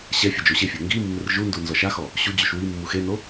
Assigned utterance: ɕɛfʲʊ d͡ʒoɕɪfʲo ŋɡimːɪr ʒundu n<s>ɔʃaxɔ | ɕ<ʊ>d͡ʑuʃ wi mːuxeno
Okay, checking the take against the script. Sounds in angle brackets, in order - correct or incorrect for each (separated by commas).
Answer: incorrect, incorrect